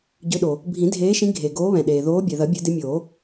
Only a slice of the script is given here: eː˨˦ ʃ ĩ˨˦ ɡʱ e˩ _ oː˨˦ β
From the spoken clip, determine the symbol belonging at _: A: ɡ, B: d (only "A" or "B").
A